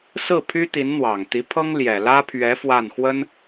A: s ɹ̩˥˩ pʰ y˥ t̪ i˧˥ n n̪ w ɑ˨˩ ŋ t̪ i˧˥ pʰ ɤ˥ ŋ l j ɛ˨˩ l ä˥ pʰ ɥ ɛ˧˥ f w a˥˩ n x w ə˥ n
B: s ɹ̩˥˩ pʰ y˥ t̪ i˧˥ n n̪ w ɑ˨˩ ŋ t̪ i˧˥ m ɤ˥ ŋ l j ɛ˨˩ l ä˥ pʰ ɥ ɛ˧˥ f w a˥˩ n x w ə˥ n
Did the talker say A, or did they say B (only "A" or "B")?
A